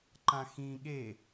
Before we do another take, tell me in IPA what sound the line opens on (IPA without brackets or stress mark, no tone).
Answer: ǃ